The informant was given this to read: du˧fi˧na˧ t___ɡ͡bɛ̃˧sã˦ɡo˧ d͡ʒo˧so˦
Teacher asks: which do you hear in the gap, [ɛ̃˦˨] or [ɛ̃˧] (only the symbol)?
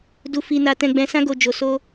ɛ̃˧